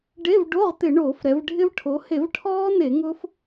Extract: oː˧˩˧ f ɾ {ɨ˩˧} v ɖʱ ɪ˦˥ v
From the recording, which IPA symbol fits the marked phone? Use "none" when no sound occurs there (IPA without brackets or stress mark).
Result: ɛ˩˧